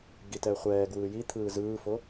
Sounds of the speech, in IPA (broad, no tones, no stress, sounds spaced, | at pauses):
ɡ i t ɛː χʷ ɛː ɡ w ɯː j i t̪ʰ ɯː z ɯː f o